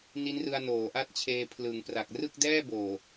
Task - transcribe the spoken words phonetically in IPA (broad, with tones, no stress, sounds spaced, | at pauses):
n i˦˥ n r ɯ˧ a̯ n oː˩˦ ʔ a˦˥ t̚ t͡ɕʰ eː˧ pʰ l ɯ˩˦ ŋ p r a˨˩ k̚ r ɯ˥˩ k̚ d ɛː˥˩ b oː˨˩